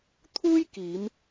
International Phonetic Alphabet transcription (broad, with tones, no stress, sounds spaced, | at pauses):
t̪ʰ uː˥ j k iː˨˧ m